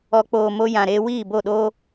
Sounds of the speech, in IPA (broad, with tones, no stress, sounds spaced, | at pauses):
ɔ˨ k͡p oː˨ m o˧ j ã˨ ɾ eː˧ w iː˦˨ b o˦˨ ɗ oː˦